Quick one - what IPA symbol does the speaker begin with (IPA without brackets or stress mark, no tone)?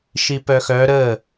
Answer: ʃ